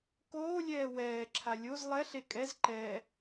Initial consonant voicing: voiceless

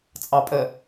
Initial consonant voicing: voiceless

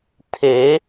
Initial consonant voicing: voiceless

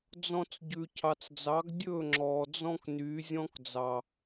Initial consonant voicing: voiced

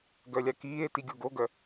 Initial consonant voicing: voiced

